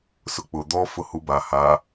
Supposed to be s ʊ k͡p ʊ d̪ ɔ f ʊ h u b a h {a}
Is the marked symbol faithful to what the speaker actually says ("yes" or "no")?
yes